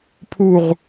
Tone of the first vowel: falling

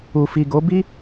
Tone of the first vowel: low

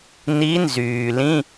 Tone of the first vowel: rising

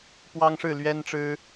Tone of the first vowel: high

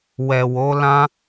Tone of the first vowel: low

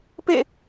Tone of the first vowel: falling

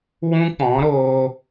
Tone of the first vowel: high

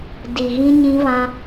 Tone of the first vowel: low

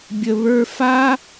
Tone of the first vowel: low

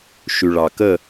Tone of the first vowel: low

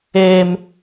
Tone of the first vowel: low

